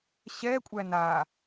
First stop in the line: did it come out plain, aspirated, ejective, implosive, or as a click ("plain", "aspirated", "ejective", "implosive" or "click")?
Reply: ejective